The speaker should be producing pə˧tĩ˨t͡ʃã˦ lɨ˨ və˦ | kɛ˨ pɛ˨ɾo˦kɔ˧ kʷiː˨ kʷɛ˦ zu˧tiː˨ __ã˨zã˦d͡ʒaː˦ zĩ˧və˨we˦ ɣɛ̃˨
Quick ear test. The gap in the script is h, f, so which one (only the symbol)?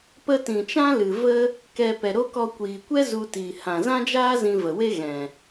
h